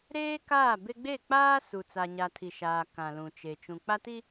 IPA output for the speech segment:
ɾ eː˦ k aː˦˨ b e˦ ɡ͡b e˦˨ k͡p aː˦ s u˨ t͡s a˨ ɲ a˨ tʰ i˨ ʃ aː˨ k ã˨ l ũ˨ t͡ʃ e˨ t͡ʃ ũ˨ k͡p a˦ t i˦

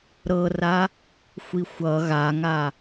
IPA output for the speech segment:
ɾ ɤ r a | xʷ i xʷ ʌ ɣ a ŋ a

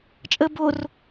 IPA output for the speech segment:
t͡ʃʼ ə b o r

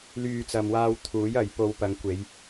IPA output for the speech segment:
l yː˨ t͡s ɐ˨ m w aː˧ w t̪ʰ uː˨˥ j ɐ˨ j p o˨˧ w p ɐ˨˧ ŋ kʷ e˨˧ j

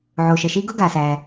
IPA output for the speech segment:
ʕ oː˩ ʃ ə˩ ʃ i˥ ɡ ʊ˥ ɡ a˩ s æ˩

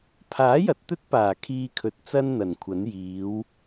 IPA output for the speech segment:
pʰ aː˨˥ j ɐ˨˥ t̚ t̪ ɵ˥ t̚ p aː˨˩ kʰ iː˧ kʰ ɵ˨ t̚ t͡s ɐ˥ n n̪ ɐ˨˩ n kʷʰ ɐ˨˥ n j iː˨˥ w

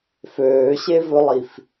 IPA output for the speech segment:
f øː ɕ e v ɵ lˠ i f

